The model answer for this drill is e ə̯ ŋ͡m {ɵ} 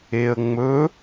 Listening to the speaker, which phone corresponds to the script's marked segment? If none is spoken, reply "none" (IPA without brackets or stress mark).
ɵ